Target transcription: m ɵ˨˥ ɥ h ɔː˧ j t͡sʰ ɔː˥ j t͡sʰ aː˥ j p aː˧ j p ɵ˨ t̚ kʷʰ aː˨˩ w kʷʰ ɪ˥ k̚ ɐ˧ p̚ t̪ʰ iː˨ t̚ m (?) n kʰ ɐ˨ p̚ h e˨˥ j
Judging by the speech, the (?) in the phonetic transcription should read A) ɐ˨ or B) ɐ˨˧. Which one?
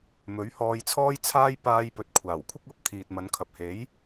B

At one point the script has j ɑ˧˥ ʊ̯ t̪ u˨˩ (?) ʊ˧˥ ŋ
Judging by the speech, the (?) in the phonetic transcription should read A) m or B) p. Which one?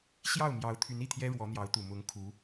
A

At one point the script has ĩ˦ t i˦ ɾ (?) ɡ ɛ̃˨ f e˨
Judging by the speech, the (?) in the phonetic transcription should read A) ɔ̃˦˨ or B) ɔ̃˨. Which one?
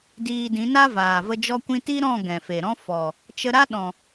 A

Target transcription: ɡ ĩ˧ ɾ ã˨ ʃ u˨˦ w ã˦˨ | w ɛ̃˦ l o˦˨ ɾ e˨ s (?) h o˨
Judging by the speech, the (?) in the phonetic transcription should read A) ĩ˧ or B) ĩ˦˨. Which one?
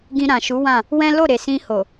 A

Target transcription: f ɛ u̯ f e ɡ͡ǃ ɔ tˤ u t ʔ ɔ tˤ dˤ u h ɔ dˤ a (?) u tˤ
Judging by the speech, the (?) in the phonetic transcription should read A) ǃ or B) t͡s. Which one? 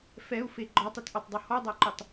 A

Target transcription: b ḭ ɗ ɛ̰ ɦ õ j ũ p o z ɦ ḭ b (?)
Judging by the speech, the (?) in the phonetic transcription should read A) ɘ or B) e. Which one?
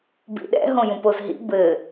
A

